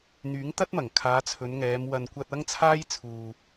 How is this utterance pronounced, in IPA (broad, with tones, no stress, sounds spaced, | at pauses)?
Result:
n̪ yː˨˥ ŋ t̪ ɐ˥ t̚ m ɐ˨˩ ŋ kʰ aː˨˧ t͡sʰ ɵ˨˧ n ŋ ɛː˨˧ m w ɐ˨ n kʷ ɐ˧ t̚ ɐ˥ ŋ t͡sʰ aː˥ j t͡sʰ uː˨